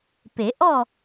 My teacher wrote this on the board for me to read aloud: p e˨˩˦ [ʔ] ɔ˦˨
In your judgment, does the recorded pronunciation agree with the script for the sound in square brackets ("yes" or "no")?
yes